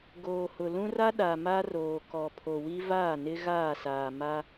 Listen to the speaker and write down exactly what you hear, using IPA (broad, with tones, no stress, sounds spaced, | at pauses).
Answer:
ɡ oː˨ h ʊ˨ l ũ˦ r a˦ ɗ a˨ m a˦ r oː˨ k ɔ˨ pʰ o˨ w i˦ v aː˦˨ n ɪ˦ ɣ aː˦˨ s aː˨ m a˦